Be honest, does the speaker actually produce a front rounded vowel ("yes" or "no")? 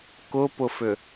yes